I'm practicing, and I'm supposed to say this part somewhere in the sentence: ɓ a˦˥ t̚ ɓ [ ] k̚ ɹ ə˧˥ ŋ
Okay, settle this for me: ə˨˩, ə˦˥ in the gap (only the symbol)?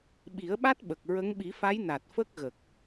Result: ə˨˩